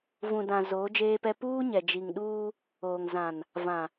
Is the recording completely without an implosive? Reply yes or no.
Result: no